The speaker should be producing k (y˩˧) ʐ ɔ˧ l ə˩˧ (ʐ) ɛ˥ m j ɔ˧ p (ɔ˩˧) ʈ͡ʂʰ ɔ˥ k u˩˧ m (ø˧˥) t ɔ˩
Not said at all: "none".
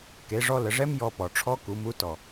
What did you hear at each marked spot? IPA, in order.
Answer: e˩˧, ʐ, ɔ˩, u˧˥

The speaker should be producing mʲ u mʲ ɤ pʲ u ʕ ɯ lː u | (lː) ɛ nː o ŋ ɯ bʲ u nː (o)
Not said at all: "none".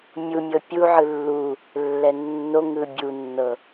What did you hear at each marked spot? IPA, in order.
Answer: lː, ɤ

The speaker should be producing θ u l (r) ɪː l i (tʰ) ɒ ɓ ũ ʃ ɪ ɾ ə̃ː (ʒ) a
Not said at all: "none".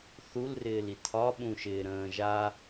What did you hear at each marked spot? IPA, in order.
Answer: r, tʰ, ʒ

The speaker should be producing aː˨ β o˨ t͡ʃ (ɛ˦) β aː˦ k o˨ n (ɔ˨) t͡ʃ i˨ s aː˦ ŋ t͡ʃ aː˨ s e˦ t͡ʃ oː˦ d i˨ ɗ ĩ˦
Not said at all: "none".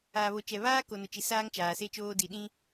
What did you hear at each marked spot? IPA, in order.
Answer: ɛ˨, ʊ˨

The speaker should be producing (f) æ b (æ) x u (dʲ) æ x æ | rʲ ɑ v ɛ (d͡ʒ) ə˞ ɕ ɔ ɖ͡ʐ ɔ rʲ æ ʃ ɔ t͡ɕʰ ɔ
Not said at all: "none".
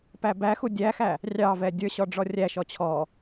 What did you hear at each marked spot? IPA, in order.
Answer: p, æ, dʲ, dʲ

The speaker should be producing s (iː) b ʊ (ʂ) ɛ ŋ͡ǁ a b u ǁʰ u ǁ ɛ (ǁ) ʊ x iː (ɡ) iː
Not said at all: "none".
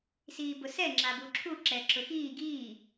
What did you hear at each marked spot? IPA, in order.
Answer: iː, s, ǁ, ɡ

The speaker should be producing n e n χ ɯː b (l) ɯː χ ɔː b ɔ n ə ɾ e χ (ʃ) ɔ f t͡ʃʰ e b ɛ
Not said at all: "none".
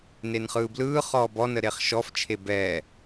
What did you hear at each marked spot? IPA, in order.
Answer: l, ʃ

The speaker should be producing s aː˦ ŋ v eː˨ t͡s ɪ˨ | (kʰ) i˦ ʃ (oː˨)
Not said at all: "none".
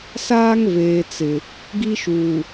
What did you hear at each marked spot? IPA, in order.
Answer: ɡ, uː˨

